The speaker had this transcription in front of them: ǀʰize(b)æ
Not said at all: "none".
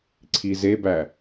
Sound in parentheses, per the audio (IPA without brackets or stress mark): b